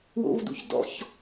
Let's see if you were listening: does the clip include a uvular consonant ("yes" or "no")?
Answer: no